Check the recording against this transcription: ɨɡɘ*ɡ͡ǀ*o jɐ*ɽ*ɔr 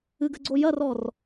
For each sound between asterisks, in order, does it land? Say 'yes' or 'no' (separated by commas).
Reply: yes, no